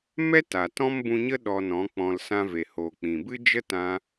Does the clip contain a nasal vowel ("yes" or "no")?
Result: yes